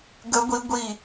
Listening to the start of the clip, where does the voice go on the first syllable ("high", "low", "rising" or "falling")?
rising